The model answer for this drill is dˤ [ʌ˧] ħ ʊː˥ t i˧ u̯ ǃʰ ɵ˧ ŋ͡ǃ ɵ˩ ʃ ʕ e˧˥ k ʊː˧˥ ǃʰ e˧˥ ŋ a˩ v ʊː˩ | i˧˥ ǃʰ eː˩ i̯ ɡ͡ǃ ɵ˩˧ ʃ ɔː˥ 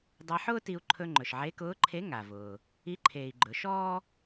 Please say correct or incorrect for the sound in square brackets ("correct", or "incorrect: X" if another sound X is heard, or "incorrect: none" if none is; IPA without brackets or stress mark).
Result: incorrect: a˧